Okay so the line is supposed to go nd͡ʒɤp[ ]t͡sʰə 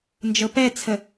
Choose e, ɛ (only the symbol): ɛ